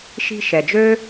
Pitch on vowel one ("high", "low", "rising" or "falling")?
high